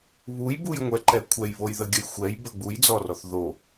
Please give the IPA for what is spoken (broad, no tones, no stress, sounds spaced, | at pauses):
β u j b u j ŋʷ ɛ ǃ ɛ kʷʰ ɛ j β o j ð ə ɡʲ ə j xʷ ɛ j b ə ɡ͡b u j d͡z ɔ r ɔ θ ð o